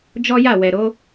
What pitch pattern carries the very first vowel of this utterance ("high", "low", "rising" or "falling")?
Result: high